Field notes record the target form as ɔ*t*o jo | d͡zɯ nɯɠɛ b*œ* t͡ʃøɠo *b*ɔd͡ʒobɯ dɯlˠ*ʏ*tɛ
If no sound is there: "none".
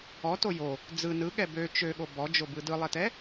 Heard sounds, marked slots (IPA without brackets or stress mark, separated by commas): t, ø, b, ɛ